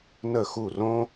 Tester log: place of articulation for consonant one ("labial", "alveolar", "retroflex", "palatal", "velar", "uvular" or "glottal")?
alveolar